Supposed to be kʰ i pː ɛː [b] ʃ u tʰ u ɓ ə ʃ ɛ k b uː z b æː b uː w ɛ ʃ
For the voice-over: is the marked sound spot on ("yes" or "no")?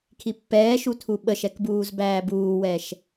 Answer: no